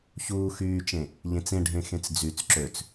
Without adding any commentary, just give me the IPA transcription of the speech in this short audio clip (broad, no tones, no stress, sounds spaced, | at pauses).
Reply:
ç uː x yː t͡ʃ ẽ | ʎ ẽ t͡s ẽ ɖʱ ẽ x ẽ t͡s d͡z y t͡s ǁ ø t͡s